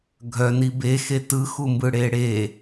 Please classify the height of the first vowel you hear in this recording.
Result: mid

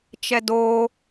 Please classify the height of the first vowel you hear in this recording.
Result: mid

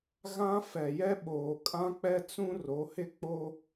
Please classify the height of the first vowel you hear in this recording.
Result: low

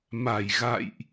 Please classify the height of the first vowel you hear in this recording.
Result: low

